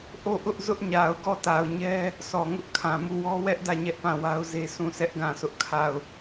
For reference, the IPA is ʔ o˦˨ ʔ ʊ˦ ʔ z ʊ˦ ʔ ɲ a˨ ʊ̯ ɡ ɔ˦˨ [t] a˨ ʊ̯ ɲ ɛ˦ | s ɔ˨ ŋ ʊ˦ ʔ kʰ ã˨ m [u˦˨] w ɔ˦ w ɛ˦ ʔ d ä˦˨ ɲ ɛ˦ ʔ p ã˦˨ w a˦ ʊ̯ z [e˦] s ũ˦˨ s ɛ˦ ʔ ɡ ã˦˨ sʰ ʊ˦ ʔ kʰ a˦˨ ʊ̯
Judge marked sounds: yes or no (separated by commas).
yes, yes, yes